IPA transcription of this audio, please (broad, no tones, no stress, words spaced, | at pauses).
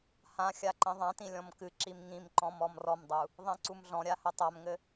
hãxʲa ǃĩðˤãtĩ lʲɔ̃mkɨǁim ŋĩmǃɔ̃m ɔmrɔmdˤu | ðˤĩǀumɮɔ̃ɾʲa hɘtˤamŋɘ